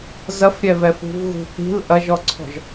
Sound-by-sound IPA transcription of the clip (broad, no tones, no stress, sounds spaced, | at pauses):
z ɐ f ɾʲ ɛ v ɛ f ṳ v ɣ ṳ θ i̤ l ʔ ɐ ʒ ɔ ǀʰ ɔ̤ ʒ